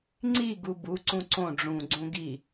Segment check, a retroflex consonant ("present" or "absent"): present